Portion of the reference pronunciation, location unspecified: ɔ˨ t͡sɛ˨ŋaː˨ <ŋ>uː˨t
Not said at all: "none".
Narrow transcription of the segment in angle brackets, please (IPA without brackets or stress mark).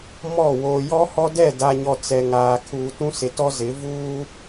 kʰ